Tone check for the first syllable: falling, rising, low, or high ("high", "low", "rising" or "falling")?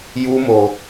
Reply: high